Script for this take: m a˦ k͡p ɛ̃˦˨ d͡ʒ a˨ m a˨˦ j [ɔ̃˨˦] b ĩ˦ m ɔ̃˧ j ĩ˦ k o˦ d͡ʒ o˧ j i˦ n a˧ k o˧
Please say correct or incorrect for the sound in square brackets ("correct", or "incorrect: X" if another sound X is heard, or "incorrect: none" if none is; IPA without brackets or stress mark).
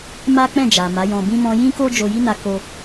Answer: incorrect: ɔ̃˧